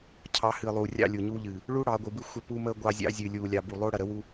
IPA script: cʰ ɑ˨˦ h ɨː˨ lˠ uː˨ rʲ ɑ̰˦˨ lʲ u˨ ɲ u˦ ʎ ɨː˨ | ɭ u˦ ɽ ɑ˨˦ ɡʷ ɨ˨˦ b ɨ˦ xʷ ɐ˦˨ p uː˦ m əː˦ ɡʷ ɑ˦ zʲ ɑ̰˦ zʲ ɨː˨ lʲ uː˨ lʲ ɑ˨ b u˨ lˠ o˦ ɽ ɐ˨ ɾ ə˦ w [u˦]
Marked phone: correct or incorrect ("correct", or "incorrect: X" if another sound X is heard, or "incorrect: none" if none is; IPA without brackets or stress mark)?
correct